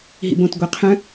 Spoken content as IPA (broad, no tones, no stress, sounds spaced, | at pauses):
ɦ ḭ b õ t ɡʷ e qʰ œ̃